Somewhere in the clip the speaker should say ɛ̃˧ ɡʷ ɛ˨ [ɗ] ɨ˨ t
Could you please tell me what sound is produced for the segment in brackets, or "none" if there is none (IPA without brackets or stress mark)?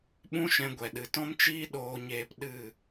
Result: ɗ